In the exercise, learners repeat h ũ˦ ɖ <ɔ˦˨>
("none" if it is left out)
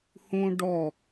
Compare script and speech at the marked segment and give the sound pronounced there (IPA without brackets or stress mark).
ɔ˦˨